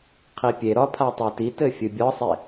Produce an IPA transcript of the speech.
qʰ i pʲ e ɾ ɒ pʰ a tˤ a t i t ɘ fʲ ɨ bʲ ɒ sˤ e

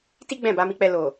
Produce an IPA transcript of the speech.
t i˦ ɡ͡b ɛ̃˦˨ b a˨˦ m i˧ k͡p ɛ˧ l o˨

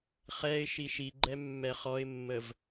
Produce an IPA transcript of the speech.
χ ɛ ɪ̯ ʃ i ʃ i ɡ͡ǃ ɛ mː ɛ χ ɔ ɪ̯ mː ə v

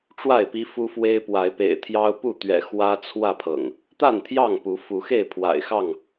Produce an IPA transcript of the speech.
ʈ͡ʂ w a˥˨ ɪ̯ p i˦ f u˦ f w e˦ ɪ̯ p w a˨˦ ɪ̯ p ḛ˨˩ ɪ̯ t̪ʰ j ɑ˦ ʊ̯ p u˥˨ t̪ ɥ ɛ̰˨˩ x w ä˦ t͡sʰ w ä˥˨ pʰ ɤ̰˨˩ ŋ | t̪ a˥˨ n t̪ʰ j ɑ˥˨ ŋ p u˨˦ f u˨˦ x e˥˨ ɪ̯ pʰ w a̰˨˩ ɪ̯ x ɑ˥˨ ŋ

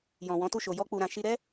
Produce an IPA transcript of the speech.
j ɔ̃˨ w ɔ̃˨˦ t u˦˨ ʃ o˨ j ɔ˧ k͡p u˨ ɾ ã˨ ʃ i˧ ɾ ɛ˦

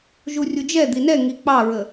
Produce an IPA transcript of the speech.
ʒ u rʲ u d͡ʒ ɛ d̪ i n ɛ ŋ i k͡p ɑ ɹ ə

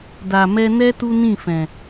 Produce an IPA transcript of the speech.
d a˨ m ɛ˧ n ɛ˦ t u˦ n ĩ˦˨ f ɛ̃˨

